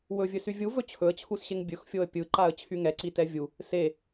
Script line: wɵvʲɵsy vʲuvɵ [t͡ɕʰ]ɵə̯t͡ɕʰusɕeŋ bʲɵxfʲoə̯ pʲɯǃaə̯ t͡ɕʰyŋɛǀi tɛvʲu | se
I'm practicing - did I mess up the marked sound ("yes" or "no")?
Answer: no